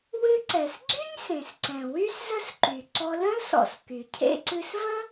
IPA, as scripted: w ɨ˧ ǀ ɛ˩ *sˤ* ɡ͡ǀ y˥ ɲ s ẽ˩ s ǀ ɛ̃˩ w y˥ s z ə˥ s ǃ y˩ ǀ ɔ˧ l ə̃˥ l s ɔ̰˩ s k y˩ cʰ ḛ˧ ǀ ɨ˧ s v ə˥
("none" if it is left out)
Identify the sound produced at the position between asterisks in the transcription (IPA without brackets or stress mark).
s